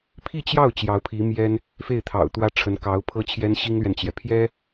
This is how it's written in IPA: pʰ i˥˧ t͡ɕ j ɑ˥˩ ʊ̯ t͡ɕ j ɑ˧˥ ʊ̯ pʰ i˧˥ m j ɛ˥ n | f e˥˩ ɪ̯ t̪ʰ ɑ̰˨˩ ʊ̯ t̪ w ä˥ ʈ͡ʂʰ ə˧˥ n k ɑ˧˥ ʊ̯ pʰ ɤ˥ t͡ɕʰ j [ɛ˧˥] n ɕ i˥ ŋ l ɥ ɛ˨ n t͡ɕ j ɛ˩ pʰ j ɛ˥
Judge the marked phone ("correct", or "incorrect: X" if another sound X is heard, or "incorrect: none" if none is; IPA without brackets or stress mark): incorrect: ɛ˥